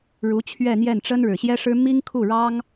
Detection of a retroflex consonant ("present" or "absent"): present